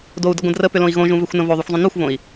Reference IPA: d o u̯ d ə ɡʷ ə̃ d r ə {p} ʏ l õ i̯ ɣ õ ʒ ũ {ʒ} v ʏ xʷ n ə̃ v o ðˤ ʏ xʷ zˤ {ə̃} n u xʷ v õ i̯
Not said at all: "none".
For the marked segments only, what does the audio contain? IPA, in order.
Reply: p, none, ə̃

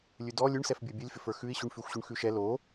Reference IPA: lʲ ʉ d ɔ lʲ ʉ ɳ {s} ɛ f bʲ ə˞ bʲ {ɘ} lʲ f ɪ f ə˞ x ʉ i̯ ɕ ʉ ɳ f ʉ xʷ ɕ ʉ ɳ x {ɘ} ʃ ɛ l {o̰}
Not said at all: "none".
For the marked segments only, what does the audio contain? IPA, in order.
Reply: s, ʉ, ʉ, o

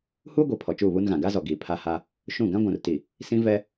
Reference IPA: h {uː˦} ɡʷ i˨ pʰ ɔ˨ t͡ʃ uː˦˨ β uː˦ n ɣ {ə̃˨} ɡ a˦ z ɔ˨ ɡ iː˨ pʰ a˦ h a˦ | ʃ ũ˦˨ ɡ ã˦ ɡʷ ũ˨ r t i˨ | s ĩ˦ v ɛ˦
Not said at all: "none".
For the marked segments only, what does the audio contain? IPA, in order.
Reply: uː˦, ã˨

